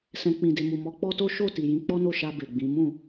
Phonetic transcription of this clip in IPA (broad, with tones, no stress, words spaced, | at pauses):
sɛ̃˧ k͡pĩ˨de˨mu˨ mɔ˨˦k͡pɔ˦to˦ ʃo˦˨ ti˨jĩ˨˦ k͡pɔ˦no˦˨ʃa˧ be˨ɡ͡bĩ˨˦ mũ˦˨